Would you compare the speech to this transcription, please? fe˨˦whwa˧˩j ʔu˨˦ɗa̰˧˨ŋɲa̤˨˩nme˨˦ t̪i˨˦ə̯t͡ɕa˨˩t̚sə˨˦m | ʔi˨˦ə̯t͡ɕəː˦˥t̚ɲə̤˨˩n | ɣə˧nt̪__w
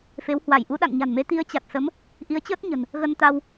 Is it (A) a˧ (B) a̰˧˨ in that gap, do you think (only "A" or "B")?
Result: A